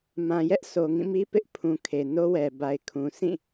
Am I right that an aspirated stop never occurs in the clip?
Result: no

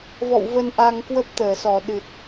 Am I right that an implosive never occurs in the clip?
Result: no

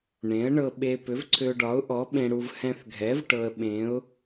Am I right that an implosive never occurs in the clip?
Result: no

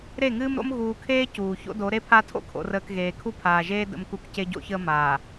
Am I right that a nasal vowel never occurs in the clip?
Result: yes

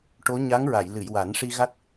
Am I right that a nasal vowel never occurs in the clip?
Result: yes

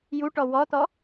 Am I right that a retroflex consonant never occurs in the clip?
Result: no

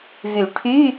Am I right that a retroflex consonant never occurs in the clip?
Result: no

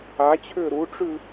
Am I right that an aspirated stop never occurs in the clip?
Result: no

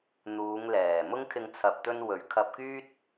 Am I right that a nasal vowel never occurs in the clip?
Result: yes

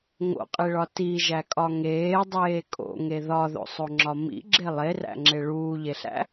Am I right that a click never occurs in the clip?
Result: no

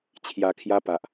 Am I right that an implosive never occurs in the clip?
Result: yes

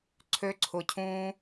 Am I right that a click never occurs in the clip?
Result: no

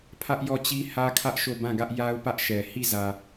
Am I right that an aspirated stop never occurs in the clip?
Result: no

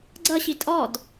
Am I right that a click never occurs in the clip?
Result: no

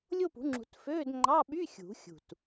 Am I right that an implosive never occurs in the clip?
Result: no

